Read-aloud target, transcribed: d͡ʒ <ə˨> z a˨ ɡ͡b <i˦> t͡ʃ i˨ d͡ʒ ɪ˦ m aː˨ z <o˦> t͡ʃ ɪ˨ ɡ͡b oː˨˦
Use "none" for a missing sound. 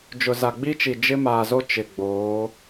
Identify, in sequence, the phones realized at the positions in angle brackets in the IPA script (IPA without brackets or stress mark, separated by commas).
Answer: ʊ˨, i˦, o˦